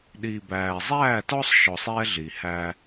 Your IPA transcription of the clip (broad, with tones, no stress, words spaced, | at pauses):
ɗiː˨bæː˨ zˤæː˦˨tɔ˦sˤʃɔ˨sˤ ɛ˦ ɮi˨hæː˦